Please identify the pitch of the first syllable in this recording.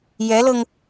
rising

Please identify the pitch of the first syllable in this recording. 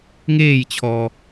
falling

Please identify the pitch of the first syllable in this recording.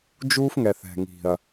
high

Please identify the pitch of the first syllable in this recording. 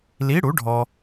rising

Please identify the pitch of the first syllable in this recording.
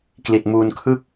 low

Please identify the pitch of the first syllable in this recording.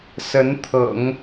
rising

